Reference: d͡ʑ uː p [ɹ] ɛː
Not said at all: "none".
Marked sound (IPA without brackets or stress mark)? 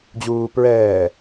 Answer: ɹ